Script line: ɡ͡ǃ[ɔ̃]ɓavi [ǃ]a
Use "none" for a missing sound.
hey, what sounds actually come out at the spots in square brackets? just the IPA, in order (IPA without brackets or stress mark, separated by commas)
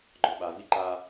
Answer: ɔ, ǃ